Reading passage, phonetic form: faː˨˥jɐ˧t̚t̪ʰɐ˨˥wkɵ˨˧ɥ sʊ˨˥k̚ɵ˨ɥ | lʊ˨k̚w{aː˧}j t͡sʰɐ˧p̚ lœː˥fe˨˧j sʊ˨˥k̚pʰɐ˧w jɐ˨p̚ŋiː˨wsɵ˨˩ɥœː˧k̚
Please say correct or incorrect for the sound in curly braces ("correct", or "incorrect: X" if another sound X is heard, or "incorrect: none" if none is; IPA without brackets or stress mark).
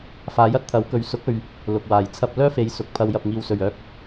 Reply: incorrect: aː˨˩